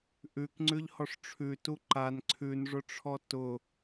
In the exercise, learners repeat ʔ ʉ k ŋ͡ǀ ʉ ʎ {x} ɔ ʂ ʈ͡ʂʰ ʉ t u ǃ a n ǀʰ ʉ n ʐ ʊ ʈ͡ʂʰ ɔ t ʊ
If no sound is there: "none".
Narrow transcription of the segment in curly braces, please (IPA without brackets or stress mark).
h